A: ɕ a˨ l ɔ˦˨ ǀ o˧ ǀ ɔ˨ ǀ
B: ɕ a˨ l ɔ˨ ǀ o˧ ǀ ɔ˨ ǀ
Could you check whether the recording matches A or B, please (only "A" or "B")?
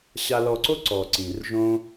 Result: B